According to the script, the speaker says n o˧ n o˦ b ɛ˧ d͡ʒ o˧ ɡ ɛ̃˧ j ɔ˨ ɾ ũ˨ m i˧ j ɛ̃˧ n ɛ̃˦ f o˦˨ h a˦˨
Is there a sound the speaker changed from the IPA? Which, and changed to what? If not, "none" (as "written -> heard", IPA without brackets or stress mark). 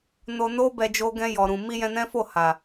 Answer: a˦˨ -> a˨